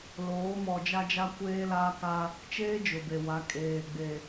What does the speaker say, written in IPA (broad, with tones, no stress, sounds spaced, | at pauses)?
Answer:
l oː˨˦ m ɔ˨ d͡ʒ a˦ d͡ʒ a˦ kʷ eː˦ l aː˦ k a˦ | t͡ʃ eː˦ d͡ʒ ʊ˨ b e˨ w a˨˦ kʼ eː˨ ɡ͡b e˨